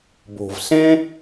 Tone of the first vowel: low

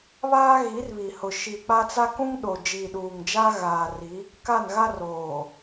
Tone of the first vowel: high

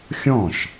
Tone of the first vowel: falling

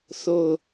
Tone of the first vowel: falling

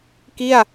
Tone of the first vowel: falling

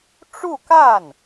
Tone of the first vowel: falling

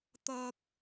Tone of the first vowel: high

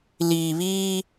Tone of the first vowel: low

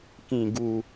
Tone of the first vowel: low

